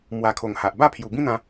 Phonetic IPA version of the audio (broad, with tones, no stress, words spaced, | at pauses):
mwa˨˩ kʰo˨˩ŋha˨ʔ ba˥˧pʰju˨˩bĩ˦n̪ã˧